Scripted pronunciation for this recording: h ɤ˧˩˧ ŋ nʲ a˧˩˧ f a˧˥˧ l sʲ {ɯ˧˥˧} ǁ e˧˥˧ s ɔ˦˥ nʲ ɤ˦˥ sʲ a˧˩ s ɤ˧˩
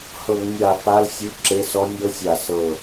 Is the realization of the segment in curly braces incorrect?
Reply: no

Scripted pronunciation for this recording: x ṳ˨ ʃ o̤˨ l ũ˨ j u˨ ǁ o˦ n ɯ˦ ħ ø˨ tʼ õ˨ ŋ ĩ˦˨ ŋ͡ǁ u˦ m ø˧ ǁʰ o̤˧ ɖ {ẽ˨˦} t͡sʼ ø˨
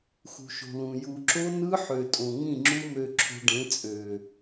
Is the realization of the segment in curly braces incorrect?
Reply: no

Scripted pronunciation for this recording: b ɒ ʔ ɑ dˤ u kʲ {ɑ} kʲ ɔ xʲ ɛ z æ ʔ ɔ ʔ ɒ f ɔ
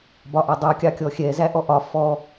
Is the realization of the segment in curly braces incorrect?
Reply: no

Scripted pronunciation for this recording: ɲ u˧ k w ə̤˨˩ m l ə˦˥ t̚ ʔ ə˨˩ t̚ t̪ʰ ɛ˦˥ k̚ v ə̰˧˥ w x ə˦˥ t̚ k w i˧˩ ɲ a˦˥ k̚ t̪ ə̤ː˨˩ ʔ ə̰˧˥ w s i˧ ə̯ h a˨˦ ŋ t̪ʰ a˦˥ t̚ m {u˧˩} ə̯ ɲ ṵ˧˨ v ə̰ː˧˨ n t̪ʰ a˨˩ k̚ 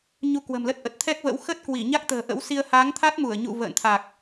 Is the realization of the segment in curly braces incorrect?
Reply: no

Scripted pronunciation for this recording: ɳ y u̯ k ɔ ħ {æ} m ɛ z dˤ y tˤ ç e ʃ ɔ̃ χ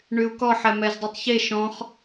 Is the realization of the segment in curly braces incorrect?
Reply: yes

